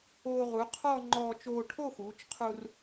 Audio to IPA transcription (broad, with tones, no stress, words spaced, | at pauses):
oː˧ʁu˩˧qʰɔ˥˧ ŋ͡ǃɔː˧t͡ʃoː˧ ʈʰo˥˧xuː˩˧t͡ʃqʰu˧r